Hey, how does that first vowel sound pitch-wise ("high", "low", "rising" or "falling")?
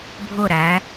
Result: falling